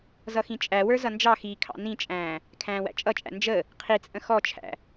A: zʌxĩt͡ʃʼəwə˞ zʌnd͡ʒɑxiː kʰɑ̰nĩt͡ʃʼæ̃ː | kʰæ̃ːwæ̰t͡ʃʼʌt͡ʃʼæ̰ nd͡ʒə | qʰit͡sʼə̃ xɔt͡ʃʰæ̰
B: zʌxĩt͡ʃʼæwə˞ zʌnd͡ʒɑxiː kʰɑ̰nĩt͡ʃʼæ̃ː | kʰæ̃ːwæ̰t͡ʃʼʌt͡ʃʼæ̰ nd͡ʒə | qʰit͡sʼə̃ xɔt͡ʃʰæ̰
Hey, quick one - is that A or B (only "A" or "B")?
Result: B